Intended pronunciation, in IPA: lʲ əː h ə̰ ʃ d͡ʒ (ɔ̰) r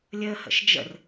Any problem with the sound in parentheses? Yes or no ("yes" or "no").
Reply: yes